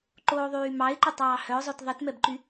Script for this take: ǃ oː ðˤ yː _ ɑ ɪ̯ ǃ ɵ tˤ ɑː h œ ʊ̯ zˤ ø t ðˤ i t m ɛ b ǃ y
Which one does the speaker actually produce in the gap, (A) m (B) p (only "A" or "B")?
A